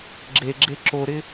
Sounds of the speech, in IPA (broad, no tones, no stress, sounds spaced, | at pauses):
ɡ͡ǁ e ɡ͡ǁ e ǁ o ɾ ɪ